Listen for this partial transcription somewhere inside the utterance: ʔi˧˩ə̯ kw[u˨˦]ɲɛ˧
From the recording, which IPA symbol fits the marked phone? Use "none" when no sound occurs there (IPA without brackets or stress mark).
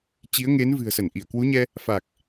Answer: u˨˦